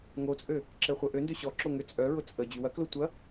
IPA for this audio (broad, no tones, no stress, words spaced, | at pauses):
ŋot͡sʼø | ǁɛχʷœʔøndø ɕɔǁo ŋʏ t͡sʼœɹʊ t͡sʼə d͡ʑywɐklo tʷɐ